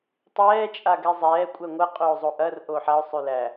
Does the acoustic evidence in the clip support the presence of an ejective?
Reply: yes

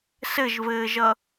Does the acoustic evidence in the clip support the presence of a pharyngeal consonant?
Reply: no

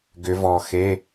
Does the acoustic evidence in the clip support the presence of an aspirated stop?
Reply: no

